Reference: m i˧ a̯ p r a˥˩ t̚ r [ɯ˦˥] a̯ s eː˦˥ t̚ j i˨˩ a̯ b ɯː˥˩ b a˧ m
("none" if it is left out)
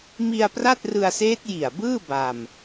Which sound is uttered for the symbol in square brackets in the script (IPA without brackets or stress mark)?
ɯ˧